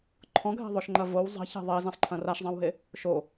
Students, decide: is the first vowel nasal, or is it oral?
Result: nasal